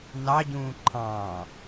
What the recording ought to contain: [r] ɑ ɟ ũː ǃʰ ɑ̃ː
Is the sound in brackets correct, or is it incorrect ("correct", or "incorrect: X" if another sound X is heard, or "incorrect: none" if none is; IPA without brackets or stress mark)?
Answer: incorrect: n